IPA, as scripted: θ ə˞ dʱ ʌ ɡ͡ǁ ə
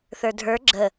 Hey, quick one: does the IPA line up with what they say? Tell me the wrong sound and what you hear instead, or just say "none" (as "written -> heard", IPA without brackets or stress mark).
ʌ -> ə˞